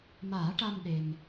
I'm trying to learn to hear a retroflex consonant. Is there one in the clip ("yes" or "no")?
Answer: yes